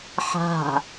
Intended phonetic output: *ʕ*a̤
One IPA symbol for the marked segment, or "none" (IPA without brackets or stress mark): ħ